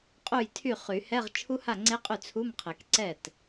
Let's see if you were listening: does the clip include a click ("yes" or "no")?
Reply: yes